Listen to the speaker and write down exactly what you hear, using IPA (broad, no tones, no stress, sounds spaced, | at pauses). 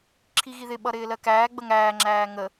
ǁʰ i ɣ i ð ɪ ɓ ʌ ɾ ɪː l ɜ k æː ɡ͡b ə ŋ æː ŋ͡ǁ æː ŋ ə